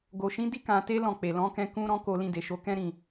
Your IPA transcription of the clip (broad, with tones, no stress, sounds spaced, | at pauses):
ɡ o˨ ʃ ĩ˨˦ d i˦ k ã˧ t e˦ l ɔ̃˦˨ k͡p e˨ l ɔ̃˨˦ k ɛ̃˧ k ũ˦ ɾ ɔ̃˦ k o˧ l ĩ˧ d e˨ ʃ o˨˦ k ɛ̃˦ ɾ ĩ˦˨